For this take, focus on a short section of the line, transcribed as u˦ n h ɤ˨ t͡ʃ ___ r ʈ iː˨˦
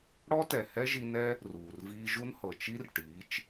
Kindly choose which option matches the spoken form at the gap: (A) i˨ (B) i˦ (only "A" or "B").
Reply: B